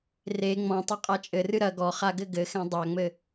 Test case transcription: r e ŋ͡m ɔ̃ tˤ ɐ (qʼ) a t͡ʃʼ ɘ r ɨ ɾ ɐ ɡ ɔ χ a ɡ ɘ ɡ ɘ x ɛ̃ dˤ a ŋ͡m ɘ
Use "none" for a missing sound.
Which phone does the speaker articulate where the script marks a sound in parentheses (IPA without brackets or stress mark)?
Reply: qʼ